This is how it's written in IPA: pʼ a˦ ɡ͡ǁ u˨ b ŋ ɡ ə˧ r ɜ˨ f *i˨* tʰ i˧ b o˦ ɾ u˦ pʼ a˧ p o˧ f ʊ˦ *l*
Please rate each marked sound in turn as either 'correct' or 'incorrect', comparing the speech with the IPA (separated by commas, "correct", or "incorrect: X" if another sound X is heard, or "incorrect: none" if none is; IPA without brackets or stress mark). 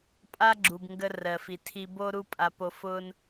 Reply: correct, incorrect: n